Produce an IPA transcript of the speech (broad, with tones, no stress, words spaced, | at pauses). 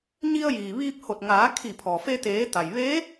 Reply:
ɲi˧ə̯jiː˩ʋiː˧p̚ ho˧˩t̚ŋaː˩˧ kʰi˧˩pʰɔː˩feː˧ t̪eː˩˧ t̪a˩j ʋeː˧˥